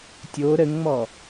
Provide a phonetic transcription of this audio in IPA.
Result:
tʲ o ɾ ə ŋ ŋ͡m ɔ

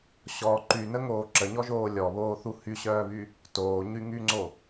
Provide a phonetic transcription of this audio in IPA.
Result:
ɕ ɔ ǃ y n ə ŋ oː ǁ ə ɲ ɔ ʒ oː lʲ ɔ β oː θ u h y ɕ œː β y | t oː ɲ y ŋ y ŋ͡ǀ o

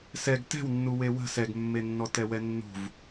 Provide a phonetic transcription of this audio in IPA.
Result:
s ɛ ɡ t ɛ̤ w nː u w e w ə̤ s ɛ ɡ mː e nː ɔ t ɛ w ɛ nː ṳ v

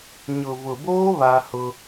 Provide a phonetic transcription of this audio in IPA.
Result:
ɲ ʊ˨ v ʊ˨ b oː˦ β a˦ h ʊ˦

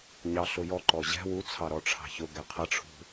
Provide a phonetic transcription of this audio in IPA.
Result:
ɲ ɑ ɬ ʊ j ɔ ǃ ɔ ʑ ɛ̤ w u t͡sʰ ɑ ɾ ɔ ʈ͡ʂʰ ɑ̤ ç ʊ ɡ ɛ qʰ ʌ ʈ͡ʂʰ ṳ

